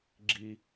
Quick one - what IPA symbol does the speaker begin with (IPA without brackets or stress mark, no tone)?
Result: ɡ͡ǁ